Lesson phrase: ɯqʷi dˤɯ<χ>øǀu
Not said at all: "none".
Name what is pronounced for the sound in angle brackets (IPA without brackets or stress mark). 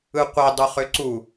χ